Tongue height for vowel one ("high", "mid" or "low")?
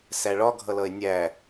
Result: low